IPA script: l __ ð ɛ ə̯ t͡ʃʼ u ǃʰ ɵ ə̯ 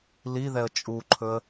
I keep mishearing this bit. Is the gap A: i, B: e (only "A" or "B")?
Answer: A